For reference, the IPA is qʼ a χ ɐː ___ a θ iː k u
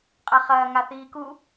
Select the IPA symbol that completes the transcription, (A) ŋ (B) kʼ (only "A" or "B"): A